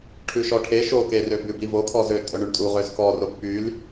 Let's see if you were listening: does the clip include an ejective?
yes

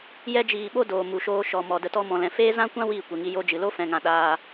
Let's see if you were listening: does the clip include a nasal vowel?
yes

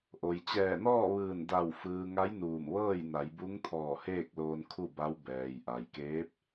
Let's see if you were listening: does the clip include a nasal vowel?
no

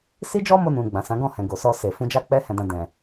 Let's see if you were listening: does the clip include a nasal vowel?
yes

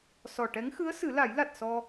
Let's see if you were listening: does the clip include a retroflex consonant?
yes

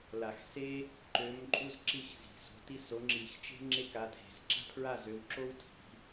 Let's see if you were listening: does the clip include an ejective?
yes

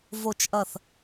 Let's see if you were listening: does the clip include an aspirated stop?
no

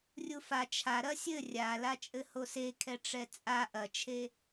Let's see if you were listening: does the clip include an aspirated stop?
yes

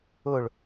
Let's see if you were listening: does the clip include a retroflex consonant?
yes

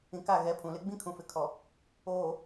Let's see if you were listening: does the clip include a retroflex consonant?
no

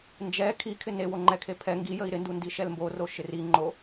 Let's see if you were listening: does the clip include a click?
yes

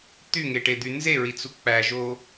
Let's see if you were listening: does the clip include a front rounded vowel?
yes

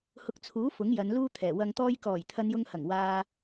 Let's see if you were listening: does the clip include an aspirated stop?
yes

